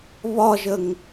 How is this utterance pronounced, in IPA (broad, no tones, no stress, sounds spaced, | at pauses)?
β ɒ ʒ ə ŋ